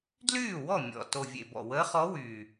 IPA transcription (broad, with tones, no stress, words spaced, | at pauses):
dlyː˥˩wɔ˥˩ mʲɔ̰˨˩ to˨˩vʲḛ˨˩ bɔ̰˨˩ wəː˧˥χɔ˧˥wyː˨˩